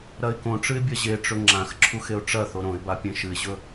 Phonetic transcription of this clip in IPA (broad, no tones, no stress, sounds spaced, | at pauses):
ɾ ɐ ɪ̯ k õ ʈ͡ʂ ɨ ɪ̯ bʲ ɐ ʑ e ʈ͡ʂ ɵ ŋ͡ǁ ã x ǁʰ u x e ʊ̯ ʈ͡ʂ ɐ θ o ɾ õ ɪ̯ b a pʲ ẽ ʃ ɨ ɪ̯ ʑ ɵ